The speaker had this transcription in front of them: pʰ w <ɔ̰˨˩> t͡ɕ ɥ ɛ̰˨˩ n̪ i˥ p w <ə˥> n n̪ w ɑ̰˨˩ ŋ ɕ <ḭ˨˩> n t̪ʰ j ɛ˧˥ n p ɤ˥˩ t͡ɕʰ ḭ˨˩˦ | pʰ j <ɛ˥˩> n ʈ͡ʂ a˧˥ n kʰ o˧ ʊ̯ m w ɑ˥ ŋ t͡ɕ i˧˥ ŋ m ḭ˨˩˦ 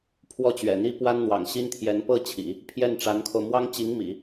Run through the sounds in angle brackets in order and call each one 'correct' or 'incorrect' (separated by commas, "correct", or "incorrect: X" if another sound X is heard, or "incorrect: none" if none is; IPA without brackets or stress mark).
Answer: incorrect: ɔ˥˩, incorrect: a˥, incorrect: i˥, correct